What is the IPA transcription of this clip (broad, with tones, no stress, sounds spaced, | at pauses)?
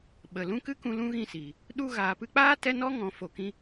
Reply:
ɓ ə˨ l ũ˦ k ɨ˦ k ũ˧ l ũ˦ ɣ ĩ˦˨ s iː˨ | ɗ u˧ ɣ aː˨ p ɨ˧ k͡p aː˦ t ɛ˦ n ɔ˦ ŋ ɔ̃˨ f o˨ k ĩ˦